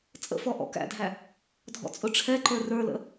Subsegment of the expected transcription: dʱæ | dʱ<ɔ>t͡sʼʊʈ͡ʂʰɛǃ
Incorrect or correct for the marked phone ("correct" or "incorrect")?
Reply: incorrect